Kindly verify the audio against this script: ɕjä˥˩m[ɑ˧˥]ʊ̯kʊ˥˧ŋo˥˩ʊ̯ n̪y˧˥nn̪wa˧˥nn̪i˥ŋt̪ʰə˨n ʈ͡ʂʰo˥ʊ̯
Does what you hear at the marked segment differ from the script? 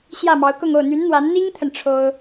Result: no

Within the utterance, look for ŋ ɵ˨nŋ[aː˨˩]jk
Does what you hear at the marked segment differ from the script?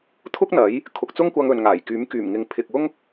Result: no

